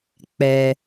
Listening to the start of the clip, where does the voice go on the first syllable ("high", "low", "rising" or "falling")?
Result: low